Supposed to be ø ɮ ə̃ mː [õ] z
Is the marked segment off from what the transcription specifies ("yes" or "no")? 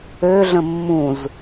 yes